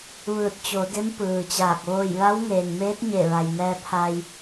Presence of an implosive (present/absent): absent